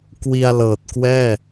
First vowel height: high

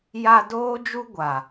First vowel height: low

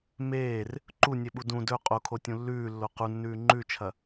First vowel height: mid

